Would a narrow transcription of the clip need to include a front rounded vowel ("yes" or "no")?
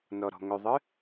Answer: yes